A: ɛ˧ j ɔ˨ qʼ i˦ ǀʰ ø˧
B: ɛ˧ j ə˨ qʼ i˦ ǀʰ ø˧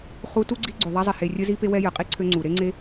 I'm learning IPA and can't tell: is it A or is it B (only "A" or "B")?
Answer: B